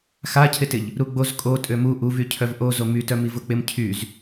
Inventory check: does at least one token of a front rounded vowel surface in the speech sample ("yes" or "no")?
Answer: yes